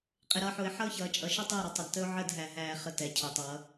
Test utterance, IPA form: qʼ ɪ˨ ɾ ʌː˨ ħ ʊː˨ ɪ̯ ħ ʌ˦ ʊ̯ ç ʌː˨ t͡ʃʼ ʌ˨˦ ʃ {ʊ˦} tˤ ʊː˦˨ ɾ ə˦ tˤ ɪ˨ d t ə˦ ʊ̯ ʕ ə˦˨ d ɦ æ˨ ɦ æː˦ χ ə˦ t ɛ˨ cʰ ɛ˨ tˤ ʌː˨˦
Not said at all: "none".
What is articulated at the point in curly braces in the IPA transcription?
ʊ˦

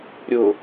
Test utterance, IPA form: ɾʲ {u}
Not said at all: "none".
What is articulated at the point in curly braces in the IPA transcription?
ʊ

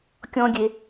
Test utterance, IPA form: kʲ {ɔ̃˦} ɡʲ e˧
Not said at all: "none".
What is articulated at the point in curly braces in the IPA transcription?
ɔ̃˦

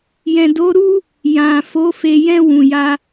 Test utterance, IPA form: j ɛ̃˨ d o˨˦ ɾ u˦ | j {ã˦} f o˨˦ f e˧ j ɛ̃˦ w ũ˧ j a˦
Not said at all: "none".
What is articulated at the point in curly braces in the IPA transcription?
ã˨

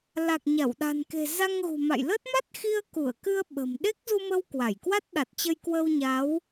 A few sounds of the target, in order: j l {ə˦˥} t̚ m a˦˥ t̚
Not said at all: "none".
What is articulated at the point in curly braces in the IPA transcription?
ə˦˥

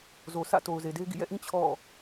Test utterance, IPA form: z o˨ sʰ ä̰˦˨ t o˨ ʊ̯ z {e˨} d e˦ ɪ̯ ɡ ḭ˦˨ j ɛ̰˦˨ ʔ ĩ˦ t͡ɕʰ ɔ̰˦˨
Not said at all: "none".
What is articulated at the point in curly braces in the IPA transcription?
e˨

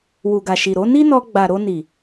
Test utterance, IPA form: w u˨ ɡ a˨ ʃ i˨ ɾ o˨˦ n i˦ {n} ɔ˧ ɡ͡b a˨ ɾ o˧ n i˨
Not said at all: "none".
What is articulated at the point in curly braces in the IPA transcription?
n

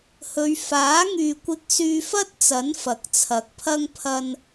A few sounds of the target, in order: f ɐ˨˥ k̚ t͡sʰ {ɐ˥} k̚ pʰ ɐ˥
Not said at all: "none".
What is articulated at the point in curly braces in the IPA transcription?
ɐ˨˥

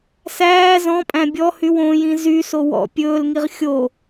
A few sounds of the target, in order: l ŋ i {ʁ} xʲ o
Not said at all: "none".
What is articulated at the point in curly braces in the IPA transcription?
ʁ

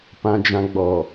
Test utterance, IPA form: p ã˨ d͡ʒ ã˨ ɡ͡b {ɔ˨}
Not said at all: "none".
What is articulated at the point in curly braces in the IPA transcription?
ɔ˨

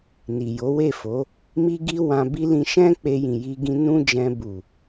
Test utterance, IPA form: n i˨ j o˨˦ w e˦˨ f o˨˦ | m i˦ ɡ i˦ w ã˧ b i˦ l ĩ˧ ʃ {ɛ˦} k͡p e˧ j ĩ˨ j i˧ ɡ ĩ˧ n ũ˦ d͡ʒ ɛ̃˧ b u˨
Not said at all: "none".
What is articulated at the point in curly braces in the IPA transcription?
ɛ̃˦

